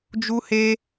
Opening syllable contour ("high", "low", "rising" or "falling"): high